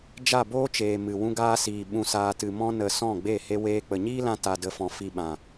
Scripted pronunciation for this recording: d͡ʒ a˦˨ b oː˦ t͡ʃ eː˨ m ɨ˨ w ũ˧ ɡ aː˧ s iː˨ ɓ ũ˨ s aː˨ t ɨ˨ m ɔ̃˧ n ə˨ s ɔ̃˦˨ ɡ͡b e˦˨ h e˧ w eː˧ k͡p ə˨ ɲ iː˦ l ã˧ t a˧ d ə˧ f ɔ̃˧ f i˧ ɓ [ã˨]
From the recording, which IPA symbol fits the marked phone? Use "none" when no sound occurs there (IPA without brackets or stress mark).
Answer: ã˨